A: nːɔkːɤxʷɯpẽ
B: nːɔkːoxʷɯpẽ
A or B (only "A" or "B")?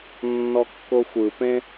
B